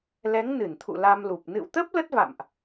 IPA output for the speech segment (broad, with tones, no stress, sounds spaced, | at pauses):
l ɛ˨˦ ŋ n ɨ˧˩ n t̪ʰ ṵ˧˨ l a˧ m l u˨˩ p̚ n ɨ̰˧˨ w t̪ ə˦˥ p̚ l ə˦˥ t̚ v a̰˧˨ m ʔ